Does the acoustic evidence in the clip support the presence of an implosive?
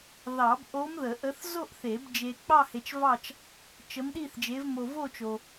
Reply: yes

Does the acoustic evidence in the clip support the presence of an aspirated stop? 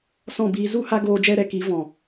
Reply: no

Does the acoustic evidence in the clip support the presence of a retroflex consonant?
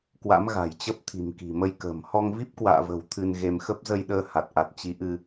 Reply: no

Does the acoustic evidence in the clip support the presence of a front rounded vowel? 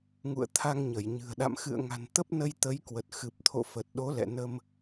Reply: no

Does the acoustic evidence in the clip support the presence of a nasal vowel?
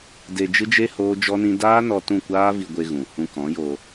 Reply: yes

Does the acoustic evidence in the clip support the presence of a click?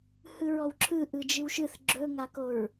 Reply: yes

